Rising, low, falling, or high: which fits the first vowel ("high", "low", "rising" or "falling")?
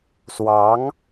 rising